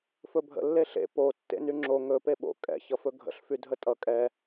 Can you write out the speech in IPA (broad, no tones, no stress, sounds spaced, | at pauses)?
f ɵ bʱ ə̰ lː e ɬ ḛ p o tː ḛ n y ŋ͡ǁ o ŋ ɵ p e ɓ o̰ kʼ ɛ̰ ç ʌ f ɵ ɡʱ ə̰ ɬ f y dʱ ə tʼ ʌ kʼ ɛ